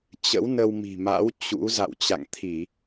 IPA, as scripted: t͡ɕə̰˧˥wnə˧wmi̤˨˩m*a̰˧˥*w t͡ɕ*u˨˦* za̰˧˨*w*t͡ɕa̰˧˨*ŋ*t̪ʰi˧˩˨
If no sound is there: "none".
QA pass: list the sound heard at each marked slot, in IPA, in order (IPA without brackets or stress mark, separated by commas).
a̰˧˥, ṵ˧˥, w, ŋ